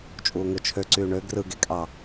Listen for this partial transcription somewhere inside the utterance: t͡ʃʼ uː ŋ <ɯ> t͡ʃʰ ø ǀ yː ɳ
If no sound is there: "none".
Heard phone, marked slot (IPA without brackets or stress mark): ɯ